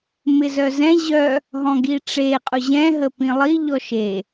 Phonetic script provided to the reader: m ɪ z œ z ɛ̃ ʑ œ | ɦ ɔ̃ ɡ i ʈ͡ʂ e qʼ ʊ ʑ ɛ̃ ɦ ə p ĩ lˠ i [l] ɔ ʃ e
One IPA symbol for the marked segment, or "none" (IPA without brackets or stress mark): ʎ